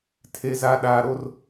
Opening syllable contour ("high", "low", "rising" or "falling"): low